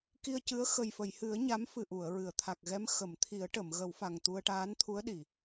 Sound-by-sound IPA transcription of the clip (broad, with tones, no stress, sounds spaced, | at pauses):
k i˧ ə̯ c ɨ˧˥ ə̯ x ə˨˩ j f ə˨˩˨ j h ɨ˨˩˦ ə̯ ɲ a˧˥ m f ɨ˨˩ ʔ u˨˩˨ ə̯ ɹ ɨ˨˩˨ ə̯ t̪ʰ a˨˩ k̚ ɣ ɛ˧˥ m x ə˨˩˨ m t̪ʰ i˨˩˦ ə̯ ʈ ə˨˩˨ m ɣ ə˨˩˦ w f a˨˩ ŋ t̪ u˧ ə̯ ʈ aː˧˥ n t̪ʰ u˧˥ ə̯ ɗ i˨˩˨